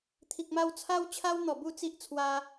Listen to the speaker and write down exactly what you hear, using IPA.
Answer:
t̪ʰi˨k̚ma˧w t͡sʰa˦wt͡ɕʰa˦wn̪ɔ˨˩bu˥˧ t͡si˦ʔt͡sʰwa˧

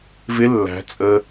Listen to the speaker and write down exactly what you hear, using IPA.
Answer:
vɪ lːæ̤ t͡sʼə

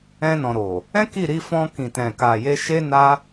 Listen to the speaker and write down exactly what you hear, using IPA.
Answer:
ɛ̃˧nɔ̃˨ɾo˨ | ɛ̃˦ki˦˨ɾi˧ fɔ̃˧kĩ˨tɛ̃˨ ka˨ je˧ʃe˦na˦

